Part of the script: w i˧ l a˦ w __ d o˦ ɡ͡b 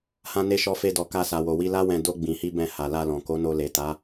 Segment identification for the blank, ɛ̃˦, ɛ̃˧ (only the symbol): ɛ̃˧